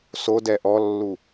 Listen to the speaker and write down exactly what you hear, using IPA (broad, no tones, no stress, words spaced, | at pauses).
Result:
sodɛ ʔɔlːu